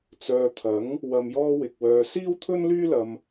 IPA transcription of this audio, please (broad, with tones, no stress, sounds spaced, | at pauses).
t͡s œː˨ t̪ʰ ɐ˨˥ ŋ | w ɐ˨ m j ɔː˧ w ɪ˨ k̚ w œː˧ s iː˥ w t̪ʰ ɵ˥ n l yː˥ l ɐ˧ m